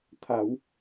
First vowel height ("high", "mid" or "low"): low